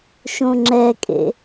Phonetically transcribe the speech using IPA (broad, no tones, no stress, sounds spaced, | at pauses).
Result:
ʃ õ ŋ͡ǁ ɛ kʼ ḛ